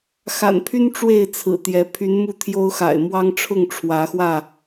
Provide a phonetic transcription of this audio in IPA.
x a̰˨˩ n pʰ y˦ n ʈ͡ʂ w e˥˨ ɪ̯ t͡sʰ ɹ̩˨˩ t̪ j ɛ˨˦ pʰ y˨˦ n m u˥˨ t̪ʰ j o˦ ʊ̯ x a̰˨˩ ɪ̯ m w ɑ˦ ŋ ʈ͡ʂʰ ʊ˥˨ ŋ ʈ͡ʂʰ w ä˨˦ x w ä˥˨

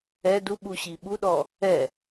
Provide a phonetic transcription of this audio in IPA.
ɛ d u ɓ u ɕ i ɓ u ɗ ɔ | ɛ

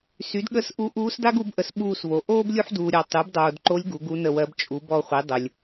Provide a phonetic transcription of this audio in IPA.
s y˩˥ d ɠ ə˦˨ s ʔ u˧˥ ʔ uː˧˥ s d a˥ ɡ u˩˥ b ʔ ə˩˥ s ɓ uː˦˨ s v o˨ ʔ oː˥ b lʲ u˥ ħ d uː˨ ɾʲ ɑ˨ tˤ y˩˥ b dˤ oː˨ d ǃ o˧˥ lʲ ɡ u˩˥ ɡ u˧˥ n ə˦˨ w ɜ˧˥ b t͡ʃʼ u˩˥ b ɔ˦˨ χʷ i˩˥ dˤ ə˨ lʲ

